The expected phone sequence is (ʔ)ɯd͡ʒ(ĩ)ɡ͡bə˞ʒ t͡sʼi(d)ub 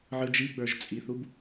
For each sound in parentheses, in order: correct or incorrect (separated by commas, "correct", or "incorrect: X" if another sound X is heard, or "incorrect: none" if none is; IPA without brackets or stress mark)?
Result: incorrect: ʕ, incorrect: i, incorrect: θ